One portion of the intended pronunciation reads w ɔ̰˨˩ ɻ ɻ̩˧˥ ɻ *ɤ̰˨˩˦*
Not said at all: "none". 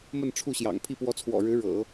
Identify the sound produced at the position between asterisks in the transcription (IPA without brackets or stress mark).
ɤ̰˨˩˦